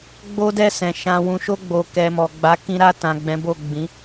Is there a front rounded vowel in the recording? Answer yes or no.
no